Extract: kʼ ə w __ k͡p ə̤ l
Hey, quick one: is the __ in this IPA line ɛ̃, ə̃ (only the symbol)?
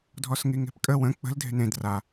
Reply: ə̃